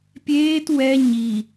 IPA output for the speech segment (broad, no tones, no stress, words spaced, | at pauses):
pʲeːt wɛ ɲi